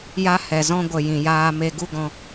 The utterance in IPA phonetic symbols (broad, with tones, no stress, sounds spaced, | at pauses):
j a˦ h ɛ˨ z ɔ̃˦ ɡʷ ə˨ j ĩ˨ j aː˧ m e˧ ɡ u˦ ɡ ɔ̃˧